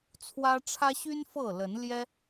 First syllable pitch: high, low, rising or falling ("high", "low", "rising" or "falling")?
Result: high